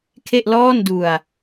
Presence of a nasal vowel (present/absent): absent